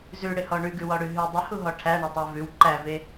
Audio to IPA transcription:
zʉɽɪhɔ ɳʉɡʉwɔɽʉ ɦʉ dˤɪhuɦɔ ʈʰæɳetˤɛ vʉw ǃæve

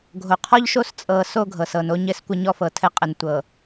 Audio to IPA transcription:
ɡʱo˨qʰɔ˦ʎʃo˦˨s t͡sʼɤ˨ so˦ɡʱɤ˨s ɤ˨no˦ɲɘ˦s kʷɘ˦ɲɔ˦fɤ˨tʰɘ˦ qʼə˨ntʷɤ˨

